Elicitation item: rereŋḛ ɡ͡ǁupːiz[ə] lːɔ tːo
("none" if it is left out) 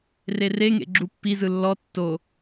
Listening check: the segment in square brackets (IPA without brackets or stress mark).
ɯ